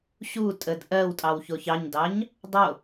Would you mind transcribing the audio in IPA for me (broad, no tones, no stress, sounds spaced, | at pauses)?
ɕ u tʼ ə d ʔ ɜ w tʼ ɑ w ç o ç ɑ ɲ d ɑ ɲ | dˤ o